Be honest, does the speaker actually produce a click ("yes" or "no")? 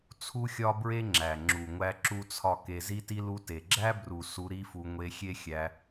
yes